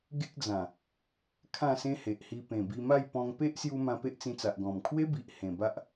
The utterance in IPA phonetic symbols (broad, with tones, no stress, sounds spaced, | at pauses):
ɡ e˦ k̚ d͡z ã˨˩ | kʰ ã˥˧ s ẽ˦ h e˨ ʔ h i˧ p ẽ˨˩ b i˧ m a˥˧ j p ɔ̃˧ ŋ p e˦ ʔ s j u˧ m ã˧ p e˦ ʔ t͡s ĩ˧ t͡s a˨ ʔ ɡ ɔ̃˨˩ m kʰ w e˦ b i˨ ʔ h ẽ˨˩ b a˦ ʔ